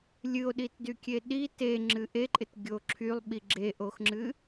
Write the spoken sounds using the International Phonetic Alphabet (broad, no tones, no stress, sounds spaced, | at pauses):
lʲ ɨ o̯ ɗ i t d y kʲ e ɗ i t e ŋ͡ǁ ɨ ʔ e ǃʼ ɪ t ɡʲ o ǁʰ y lˠ ɓ i ɡ͡ǁ e ʔ o x ŋ͡ǁ ɨ